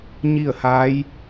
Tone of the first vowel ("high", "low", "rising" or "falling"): falling